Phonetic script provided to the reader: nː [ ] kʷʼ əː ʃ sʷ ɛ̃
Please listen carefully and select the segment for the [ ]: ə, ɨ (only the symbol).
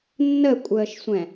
ə